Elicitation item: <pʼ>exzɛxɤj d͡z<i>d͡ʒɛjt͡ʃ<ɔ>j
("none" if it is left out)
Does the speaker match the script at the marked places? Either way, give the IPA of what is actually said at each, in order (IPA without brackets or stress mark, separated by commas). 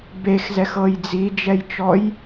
b, i, ɔ